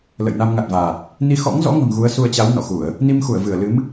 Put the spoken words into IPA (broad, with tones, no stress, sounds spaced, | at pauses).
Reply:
l ə̰˧˨ j n a˧ m ŋ a˨˩ t̚ v aː˨˩ t̚ | n i˧ x ɔ̰˧˥ ŋ z ɔ̰˧˥ ŋ ə̤˨˩ m ɣ u˨˦ ə̯ s u˧ ə̯ t͡ɕ a˨˦ w n ɔ̰˧˨ x u˧˩˨ ə̯ | n i˧ m x u˧˩ ə̯ v ɨ˧˩ ə̯ l ɨ˨˦ m